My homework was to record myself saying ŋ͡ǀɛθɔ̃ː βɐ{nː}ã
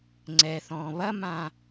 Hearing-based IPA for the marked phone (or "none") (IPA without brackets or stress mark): m